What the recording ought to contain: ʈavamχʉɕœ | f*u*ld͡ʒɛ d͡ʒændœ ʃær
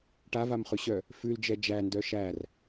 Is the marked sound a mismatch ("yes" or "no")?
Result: yes